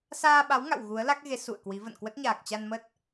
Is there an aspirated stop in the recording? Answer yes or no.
no